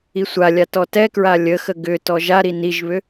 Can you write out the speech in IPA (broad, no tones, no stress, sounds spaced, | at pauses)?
i sʷ a lʲ a t ɔ t ɛ k ɹ a lʲ ə x ə ɡ ʏ t ɔ ʒ a ɾ i n i ʒ β ʏ